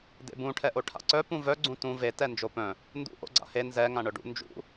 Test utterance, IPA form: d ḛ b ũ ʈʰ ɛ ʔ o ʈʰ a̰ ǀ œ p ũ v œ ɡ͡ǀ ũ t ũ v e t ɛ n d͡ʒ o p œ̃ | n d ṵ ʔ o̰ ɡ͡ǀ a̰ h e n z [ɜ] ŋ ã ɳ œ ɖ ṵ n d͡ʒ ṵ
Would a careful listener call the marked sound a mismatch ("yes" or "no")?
yes